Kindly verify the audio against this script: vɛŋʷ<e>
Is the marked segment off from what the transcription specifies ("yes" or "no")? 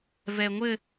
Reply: yes